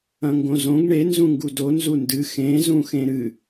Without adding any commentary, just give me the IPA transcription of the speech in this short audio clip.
ɐ̃ ŋ ɡ õ z õ ɡ ɳ e n z ũ ŋ ɡ u d o n z u n d ɨ x ẽ z ũ x ẽ ɾ ɨ

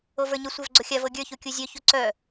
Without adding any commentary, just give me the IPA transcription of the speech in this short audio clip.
o v ə˞ ɲ ə sʷ ə˞ v ɡ͡ǀ o xʲ a v ɤ ɡʲ ə˞ ç u kʲ u zʲ œ ç u ǀ œ

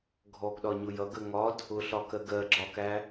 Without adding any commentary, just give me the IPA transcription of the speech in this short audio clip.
ɡʱ ɔ ɡ ɗ ɒ ɲ ʊ j ʌ ɡ ə ŋ ɒ d | ʊ ɬ ɒ k ɜ ɡ ɜ ɡ͡ǁ ɒ k æ

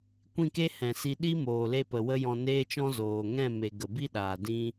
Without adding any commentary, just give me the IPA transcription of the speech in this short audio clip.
kʷ ĩ˦˨ k e˦ h ɛ̃˨ s i˧ ɗ i˦ m oː˨ l e˧ p ə˨ w ə˦ j ɔ̃˧ n eː˦ t͡ʃ ɔ̃˦ z oː˨ ŋ ɛ̃˦˨ m e˨ ɡ ə˨ b i˦ ɗ aː˨ d ĩ˦

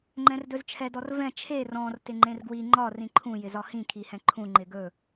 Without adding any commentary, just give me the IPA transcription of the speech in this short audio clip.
ŋ͡ǃ ɛ̃ r d ɵ z t͡ʃʰ ɛ d ɔ r v ɛ̃ t͡ʃʰ e r ɔ̃ r t ɪ ŋ͡ǃ ẽ r ɡ w i ŋ͡ǃ ɒ r ĩ ǃʰ ũ j ɪ z ɒ h ĩ kʰ i h ɛ̃ ǃʰ ũ ŋ͡ǃ ɪ ɡ ɵ

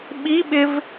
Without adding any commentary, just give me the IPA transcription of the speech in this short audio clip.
ɓ i ɓ ɪ v

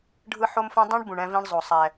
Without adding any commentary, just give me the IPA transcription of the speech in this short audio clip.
ɖʱ ɯ˦ ħ o˦ m f õ˦ dˤ ĩ˦ ɳ b ũ˨ ɳ ɛ̃˦ v ĩ˦ ɳ zˤ o˨ sˤ ɛ˨

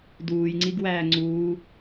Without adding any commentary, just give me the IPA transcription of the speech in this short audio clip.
d uː j ŋ͡ǀ i ɡ w æː ŋ͡ǀ uː

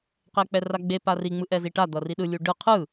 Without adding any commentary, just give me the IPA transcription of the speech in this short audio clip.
q ɛ k͡p ɛ r a ɡ͡b e p a r i ŋ͡m ɯ ʔ ɛ z i ʈ a d̪ ʌ r i ɗ ɯ lʲ u ɖ ɯ qʰ ɯ

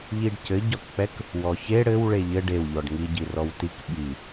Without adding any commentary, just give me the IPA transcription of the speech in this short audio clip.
ʎ i ɖ c ɘ ɟ ɒ k k͡p ɛ k | w ɔ ç e ɽ ɘ w ɭ e ʎ ɘ ɖ e w ʎ ɔ ɖ ŋ i ɟ i r ɔ w t i k ɓ i

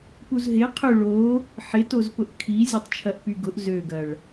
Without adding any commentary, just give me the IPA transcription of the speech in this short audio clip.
p u z ɦ ɪ qʰ ʏ ɭ o | ħ ɪ t o z p ʊ ʔ kʰ i zʲ ə tˤ t͡ʃʰ ɐ ʔ p y ɡ ʊ ʔ z ø ɡ ɐ ɭ

